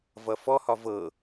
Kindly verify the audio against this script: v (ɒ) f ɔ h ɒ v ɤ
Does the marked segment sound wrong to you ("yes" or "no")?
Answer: yes